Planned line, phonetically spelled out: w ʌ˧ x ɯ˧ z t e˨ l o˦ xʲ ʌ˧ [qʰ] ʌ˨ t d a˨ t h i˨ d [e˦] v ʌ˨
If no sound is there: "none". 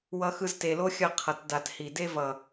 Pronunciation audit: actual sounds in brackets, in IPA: qʰ, e˦

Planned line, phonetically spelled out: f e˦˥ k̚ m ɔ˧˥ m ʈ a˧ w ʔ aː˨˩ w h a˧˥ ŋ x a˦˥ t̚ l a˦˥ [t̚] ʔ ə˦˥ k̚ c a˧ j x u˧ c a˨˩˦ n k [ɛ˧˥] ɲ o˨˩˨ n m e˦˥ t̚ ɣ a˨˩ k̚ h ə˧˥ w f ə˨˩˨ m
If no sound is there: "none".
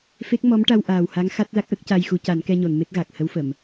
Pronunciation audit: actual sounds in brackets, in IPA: k̚, ɛ˧

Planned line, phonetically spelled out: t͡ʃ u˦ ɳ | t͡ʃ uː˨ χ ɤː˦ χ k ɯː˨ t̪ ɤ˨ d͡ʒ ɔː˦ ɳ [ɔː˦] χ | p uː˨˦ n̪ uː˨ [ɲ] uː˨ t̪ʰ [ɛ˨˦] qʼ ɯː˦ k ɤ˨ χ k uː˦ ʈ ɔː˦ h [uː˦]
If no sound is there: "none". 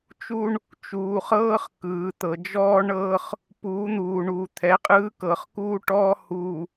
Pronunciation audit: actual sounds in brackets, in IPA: ɤː˦, ɳ, ɛ˨˦, uː˨

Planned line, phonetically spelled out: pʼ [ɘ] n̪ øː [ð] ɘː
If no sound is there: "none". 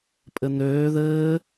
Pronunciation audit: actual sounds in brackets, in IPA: ɘ, ð

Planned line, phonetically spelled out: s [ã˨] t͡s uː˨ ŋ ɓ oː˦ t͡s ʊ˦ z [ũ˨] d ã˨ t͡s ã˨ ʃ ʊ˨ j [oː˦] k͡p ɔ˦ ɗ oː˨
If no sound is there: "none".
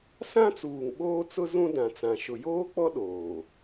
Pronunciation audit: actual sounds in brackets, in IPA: ã˦, ũ˦, oː˦

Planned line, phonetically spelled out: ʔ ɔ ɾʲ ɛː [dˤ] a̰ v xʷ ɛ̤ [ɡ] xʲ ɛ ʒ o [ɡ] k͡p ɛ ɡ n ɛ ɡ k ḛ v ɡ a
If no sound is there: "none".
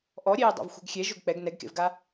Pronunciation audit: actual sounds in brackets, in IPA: dˤ, ɡ, ɡ

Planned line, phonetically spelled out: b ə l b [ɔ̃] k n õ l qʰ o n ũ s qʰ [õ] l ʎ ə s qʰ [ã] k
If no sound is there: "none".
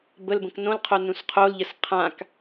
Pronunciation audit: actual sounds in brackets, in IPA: ə̃, o, ã

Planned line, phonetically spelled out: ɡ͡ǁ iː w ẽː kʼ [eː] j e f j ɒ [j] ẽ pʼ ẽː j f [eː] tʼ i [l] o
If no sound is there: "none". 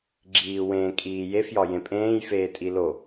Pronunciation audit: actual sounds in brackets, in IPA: iː, j, eː, l

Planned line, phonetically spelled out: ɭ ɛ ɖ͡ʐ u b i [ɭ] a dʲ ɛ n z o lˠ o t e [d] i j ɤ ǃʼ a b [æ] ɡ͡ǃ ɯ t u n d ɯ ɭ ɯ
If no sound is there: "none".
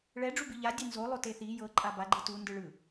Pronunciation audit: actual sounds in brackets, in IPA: ʎ, θ, a

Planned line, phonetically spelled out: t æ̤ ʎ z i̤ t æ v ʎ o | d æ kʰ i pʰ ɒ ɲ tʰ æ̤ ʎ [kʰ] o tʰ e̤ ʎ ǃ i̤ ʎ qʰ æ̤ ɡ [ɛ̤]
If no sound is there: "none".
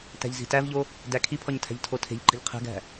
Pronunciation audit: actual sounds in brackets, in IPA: tʰ, æ̤

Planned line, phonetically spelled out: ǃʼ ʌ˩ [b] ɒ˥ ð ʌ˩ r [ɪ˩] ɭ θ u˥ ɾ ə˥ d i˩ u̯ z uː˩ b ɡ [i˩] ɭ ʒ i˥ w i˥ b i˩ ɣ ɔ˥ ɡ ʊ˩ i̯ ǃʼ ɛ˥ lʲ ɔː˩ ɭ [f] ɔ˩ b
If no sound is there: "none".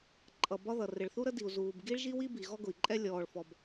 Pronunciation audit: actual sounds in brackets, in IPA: b, ɪ˩, i˥, f

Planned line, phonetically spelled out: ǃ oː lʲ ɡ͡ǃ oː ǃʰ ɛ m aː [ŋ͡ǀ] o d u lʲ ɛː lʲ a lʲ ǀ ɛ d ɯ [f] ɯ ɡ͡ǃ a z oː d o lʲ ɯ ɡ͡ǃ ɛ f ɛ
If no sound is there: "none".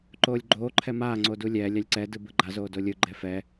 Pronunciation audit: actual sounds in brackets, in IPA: ŋ͡ǀ, b

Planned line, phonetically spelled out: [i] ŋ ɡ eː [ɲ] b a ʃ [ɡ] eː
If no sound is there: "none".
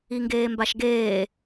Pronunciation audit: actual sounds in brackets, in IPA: i, m, ɡ

